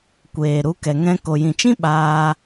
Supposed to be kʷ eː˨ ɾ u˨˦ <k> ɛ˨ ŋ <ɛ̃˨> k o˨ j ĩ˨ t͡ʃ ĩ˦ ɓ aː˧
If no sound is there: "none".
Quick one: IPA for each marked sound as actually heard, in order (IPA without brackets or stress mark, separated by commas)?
k, ɛ̃˧